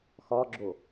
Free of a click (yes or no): no